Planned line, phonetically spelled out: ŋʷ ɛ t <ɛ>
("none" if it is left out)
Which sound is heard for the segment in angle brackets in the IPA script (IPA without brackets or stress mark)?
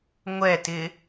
ɪ